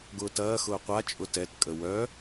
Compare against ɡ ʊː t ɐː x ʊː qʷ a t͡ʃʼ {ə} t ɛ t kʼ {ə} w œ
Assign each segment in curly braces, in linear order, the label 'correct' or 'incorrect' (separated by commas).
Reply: incorrect, correct